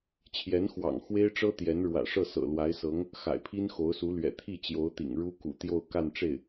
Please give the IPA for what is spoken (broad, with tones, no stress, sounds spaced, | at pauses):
t͡ɕʰ j ɛ˧˥ n x w ɑ̰˨˩ ŋ x w e˥ ɪ̯ ʈ͡ʂ ɤ˥ t̪ j ɛ˧˥ n ɻ w ä̰˨˩ ʂ ɤ˥˩ s ɤ̰˨˩ l w a˧˥ ɪ̯ s ɤ˧˥ ŋ | x a̰˨˩ ɪ̯ pʰ i˥ n x o˧˥ ʊ̯ s u˧˥ l ɥ ɛ̰˨˩ t̪ʰ i˥˩ t͡ɕ j o˧˥ ʊ̯ t̪ ḭ˨˩ ŋ ɻ u˥ k ṵ˨˩ t̪ j o˥˧ ʊ̯ k a˥˧ n ʈ͡ʂ e˥˩ ɪ̯